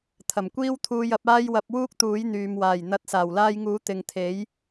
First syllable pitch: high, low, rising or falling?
low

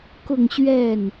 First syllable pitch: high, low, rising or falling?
falling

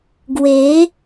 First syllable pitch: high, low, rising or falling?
rising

